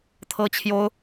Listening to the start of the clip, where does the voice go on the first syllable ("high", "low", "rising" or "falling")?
high